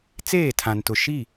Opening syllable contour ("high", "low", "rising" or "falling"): falling